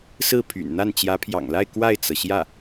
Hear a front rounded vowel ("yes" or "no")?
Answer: yes